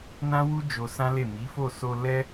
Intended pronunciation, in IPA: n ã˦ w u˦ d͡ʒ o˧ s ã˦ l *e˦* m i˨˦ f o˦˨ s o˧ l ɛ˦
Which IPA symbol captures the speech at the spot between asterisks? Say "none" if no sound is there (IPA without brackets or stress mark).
e˦˨